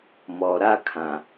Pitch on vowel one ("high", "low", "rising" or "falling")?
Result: low